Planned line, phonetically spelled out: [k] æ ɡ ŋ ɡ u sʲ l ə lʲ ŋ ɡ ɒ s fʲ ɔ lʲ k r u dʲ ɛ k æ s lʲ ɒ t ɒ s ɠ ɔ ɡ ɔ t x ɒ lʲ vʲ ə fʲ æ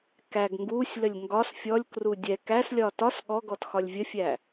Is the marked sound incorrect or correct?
correct